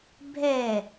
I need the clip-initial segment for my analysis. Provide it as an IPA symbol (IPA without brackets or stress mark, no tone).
bʱ